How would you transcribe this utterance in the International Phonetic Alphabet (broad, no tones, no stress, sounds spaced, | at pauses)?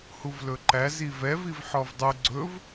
h u v l ɵ ǃ æ z i v ɛ v i v ħ ɔ v dˤ u ɡ͡ǀ ɵ v